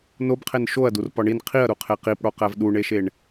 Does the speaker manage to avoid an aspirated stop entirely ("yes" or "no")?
no